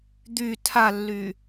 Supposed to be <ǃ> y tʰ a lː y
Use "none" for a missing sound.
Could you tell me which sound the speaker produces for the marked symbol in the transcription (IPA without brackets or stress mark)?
d̪